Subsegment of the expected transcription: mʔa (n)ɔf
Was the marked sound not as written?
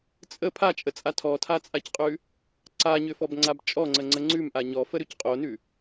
yes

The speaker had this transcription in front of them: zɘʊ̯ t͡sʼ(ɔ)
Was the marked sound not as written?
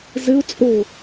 yes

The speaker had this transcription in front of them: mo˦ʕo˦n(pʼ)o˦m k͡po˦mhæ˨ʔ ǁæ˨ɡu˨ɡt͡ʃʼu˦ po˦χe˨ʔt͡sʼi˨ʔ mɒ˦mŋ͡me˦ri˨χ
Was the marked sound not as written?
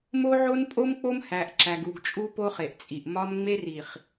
no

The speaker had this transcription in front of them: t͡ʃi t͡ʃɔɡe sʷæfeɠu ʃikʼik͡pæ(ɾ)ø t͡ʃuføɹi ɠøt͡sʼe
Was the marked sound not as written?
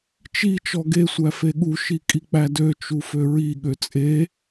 yes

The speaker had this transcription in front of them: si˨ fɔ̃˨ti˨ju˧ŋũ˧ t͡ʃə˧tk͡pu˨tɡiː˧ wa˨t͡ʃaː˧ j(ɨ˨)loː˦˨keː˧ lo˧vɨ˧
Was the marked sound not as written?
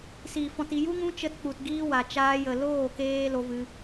yes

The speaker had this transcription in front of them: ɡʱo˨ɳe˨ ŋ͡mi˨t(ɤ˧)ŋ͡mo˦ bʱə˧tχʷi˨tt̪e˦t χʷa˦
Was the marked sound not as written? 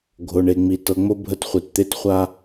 yes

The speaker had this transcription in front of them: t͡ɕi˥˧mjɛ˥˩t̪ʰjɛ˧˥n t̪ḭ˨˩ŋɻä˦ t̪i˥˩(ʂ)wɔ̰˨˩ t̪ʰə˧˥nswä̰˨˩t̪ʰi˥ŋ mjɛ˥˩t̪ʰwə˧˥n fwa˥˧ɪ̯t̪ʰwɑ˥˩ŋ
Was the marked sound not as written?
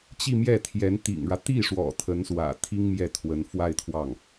no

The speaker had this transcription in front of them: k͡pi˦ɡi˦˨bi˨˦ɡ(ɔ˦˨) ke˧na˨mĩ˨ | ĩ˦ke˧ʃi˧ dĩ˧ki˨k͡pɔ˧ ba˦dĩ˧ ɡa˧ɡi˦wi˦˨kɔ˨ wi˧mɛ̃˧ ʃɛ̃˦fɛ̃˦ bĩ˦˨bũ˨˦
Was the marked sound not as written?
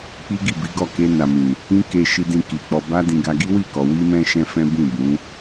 no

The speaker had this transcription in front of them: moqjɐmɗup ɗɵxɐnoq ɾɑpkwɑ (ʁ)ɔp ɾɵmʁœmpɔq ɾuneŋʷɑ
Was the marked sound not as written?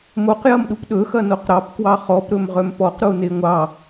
yes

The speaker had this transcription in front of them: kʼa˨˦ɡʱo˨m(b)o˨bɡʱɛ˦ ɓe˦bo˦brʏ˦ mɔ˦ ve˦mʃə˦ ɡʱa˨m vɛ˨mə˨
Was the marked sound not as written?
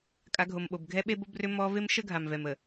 yes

